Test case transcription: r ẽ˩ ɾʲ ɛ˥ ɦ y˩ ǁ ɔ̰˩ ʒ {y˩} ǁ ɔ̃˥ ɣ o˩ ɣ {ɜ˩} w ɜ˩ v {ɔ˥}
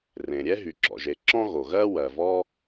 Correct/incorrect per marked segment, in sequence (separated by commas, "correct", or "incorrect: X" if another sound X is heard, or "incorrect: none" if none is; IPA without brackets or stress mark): incorrect: e˩, incorrect: ɜ˥, correct